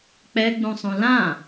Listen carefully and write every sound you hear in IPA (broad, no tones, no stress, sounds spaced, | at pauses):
k͡p ɛ ɡ͡b ũ sˤ ũ l ã